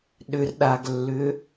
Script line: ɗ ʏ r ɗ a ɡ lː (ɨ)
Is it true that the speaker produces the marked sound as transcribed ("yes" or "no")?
no